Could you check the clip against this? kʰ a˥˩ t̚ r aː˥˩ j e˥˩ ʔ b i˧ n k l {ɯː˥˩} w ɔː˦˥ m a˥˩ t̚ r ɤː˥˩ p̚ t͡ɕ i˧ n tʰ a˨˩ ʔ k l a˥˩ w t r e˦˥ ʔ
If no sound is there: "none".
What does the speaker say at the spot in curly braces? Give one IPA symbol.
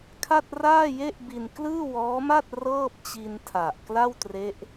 ɯː˥˩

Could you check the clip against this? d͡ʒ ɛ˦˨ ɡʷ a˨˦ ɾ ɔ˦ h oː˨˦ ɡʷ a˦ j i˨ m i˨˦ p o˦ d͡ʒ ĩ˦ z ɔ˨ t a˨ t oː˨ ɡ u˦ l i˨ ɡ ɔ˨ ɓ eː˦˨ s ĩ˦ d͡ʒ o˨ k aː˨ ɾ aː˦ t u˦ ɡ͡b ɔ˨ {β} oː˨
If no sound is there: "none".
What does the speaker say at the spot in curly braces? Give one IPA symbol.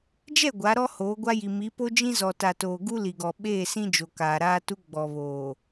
β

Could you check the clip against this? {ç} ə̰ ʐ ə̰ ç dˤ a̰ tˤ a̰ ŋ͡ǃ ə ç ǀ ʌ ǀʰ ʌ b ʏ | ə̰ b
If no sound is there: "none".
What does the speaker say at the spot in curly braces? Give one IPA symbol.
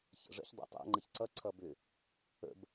ç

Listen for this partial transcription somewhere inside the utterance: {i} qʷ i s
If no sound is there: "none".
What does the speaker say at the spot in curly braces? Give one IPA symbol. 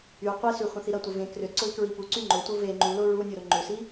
y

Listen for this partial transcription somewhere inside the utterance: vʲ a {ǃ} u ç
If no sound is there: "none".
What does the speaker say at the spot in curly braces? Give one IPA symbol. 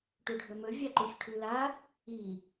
ǃ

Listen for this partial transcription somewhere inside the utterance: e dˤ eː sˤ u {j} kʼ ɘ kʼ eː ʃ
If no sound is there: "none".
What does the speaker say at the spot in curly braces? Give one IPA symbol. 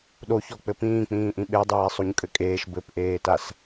ɲ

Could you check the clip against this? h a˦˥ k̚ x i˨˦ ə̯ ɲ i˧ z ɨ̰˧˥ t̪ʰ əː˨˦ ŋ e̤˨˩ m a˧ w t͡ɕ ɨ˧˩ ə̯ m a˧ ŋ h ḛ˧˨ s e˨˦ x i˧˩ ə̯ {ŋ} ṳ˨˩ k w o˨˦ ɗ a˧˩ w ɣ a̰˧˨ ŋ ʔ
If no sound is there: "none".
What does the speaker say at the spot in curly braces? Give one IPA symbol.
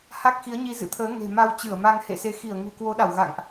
ŋ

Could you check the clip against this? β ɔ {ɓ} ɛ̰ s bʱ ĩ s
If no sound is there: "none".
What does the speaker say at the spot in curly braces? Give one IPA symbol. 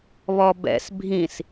b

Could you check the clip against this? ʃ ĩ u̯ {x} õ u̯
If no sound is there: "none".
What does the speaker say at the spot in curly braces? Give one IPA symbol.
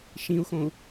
x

